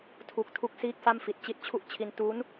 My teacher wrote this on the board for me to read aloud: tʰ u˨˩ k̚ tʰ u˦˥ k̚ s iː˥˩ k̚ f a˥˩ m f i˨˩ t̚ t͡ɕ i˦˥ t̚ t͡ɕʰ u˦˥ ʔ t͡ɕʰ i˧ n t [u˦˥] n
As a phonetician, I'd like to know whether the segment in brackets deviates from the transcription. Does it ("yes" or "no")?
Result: no